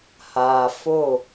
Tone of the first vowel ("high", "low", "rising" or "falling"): low